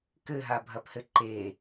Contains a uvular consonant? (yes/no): no